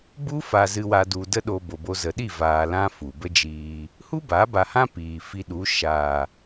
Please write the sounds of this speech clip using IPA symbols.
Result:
b u˦ f a˧ z ɨ˧ w a˧ d u˨ d ə˦ ɗ o˧ b o˨ b o˧ z ə˨ ɗ i˦˨ v aː˨ l ã˦ f u˨ b ə˦ d͡ʒ iː˧ | h u˦ b a˨˦ b a˧ h ã˦ p iː˨ f i˧ ɗ u˨˦ ʃ aː˨

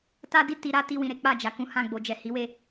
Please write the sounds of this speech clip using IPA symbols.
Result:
t a˦ d i˦˨ t i˧ ɾ a˦ t i˦ w ĩ˧ ɾ e˦ k͡p a˦˨ d͡ʒ a˨ k ũ˨˦ h ã˦˨ ɡ͡b o˨ d͡ʒ ɛ˨ h i˨˦ w e˦˨

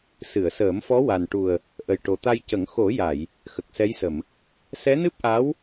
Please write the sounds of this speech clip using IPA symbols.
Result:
s ɨ˨˩˨ ə̯ s əː˨˩˦ m f ɔ˧˥ w a˨˩ n ʈ u˨˩ ə̯ | ʔ ə˨˩ j ʈ o˨˩ t̪ a˧ j c ə˨˩˦ ŋ x o˨˩˦ j a˨˩˨ j | x ə˨˩ k̚ s ɛ˧˥ j s ə˨˩˨ m | s ɛ˧˥ n ɨ˦˥ p̚ ʔ a˧˥ w

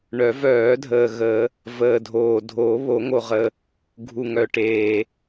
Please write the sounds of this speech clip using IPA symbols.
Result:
ɳ œ˨˩˦ v œː˨˩˦ dʱ əː˨ ɣ ə˨˩˦ | v əː˨ dʱ oː˨ dʱ oː˨˩˦ β o˨˩˦ ŋ o˨ ʁ ə˨ | ɡʱ u˨ ŋ œ˨ ʈ eː˨

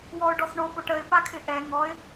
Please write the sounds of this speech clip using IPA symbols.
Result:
w ɔ ʊ̯ ɖ ɔ s ɳ o p o ʈ ə ɪ̯ p a kʰ ɪ ʔ ɛ ŋ ɔ ɪ̯

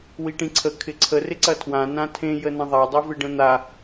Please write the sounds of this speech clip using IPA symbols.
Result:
w i ʈ ĩ ǀʰ ə kʰ ɪ ǀʰ ə r ɪ ǀ ɐ tʰ w ã n ã tʰ ẽ j ə n ɐ̃ ðˤ a dˤ i v ɪ ɖ ə̃ n̪ a

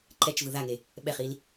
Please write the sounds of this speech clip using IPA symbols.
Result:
ǃ ɛ t͡ʃ v ɯ ð a ŋ e | ɓ ɛ χ i l

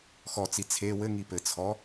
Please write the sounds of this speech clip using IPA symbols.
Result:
x ɔ t͡s i t͡sʰ e w ɘ ŋ i p ɘ t͡sʰ ɔ

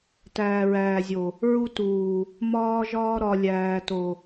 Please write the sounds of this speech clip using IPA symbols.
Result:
t æː˨ ɹ æː˨ zʲ o˨ | ɹ u˦ t uː˨ | m ɒː˦ ʒ ɒː˦ ɾ ɒ˨ lʲ æː˨ t o˨

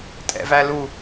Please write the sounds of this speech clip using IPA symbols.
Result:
tʼ ɛ̰ v æ l u

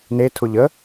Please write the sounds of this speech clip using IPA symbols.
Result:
n e tʰ ʊ ʎ ə

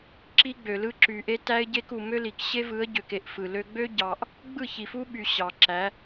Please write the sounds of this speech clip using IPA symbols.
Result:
ǁ i˦ ɡ͡b ø˨ l ɯ˦ ǁ y˨ ʔ e˦ t æ˦ ɪ̯ ɟ e˦ k u˨ m ø˦ l i˨ k ɕ e˦ v ɯ˨˦ ə̯ ɟ ø˨ k e˦˨ ʔ f ɯ˨ l ø˦ ɡ͡b ø˦ ɟ ɑ˨ ʔ | ɡ͡b ɯ˦˨ ç i˨ f u˦ ɓ y˨ ɕ ɑ˨ ǁ æ˨˦

